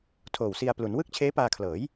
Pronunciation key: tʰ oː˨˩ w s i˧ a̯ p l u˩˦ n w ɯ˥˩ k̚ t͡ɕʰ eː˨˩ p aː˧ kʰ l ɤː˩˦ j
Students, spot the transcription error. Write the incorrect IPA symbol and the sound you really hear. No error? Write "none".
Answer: eː˨˩ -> eː˦˥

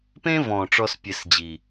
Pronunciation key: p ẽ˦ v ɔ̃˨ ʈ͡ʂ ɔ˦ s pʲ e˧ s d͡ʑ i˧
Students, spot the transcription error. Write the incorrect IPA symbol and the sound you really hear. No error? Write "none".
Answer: i˧ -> i˨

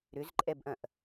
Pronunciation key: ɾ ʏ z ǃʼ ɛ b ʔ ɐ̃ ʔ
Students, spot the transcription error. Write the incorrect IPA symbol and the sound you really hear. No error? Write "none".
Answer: none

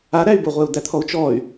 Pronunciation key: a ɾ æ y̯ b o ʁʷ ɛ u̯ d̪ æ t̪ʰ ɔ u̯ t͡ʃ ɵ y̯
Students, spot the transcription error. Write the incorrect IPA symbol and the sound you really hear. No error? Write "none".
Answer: ɵ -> ɔ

